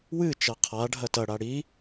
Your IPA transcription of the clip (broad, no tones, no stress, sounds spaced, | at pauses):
w ɨ t͡ʃ ɐ qʰ a ɖʱ ɐ t ɐ ɽ a ɽ i